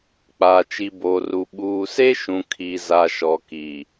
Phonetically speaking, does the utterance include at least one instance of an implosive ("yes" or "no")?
yes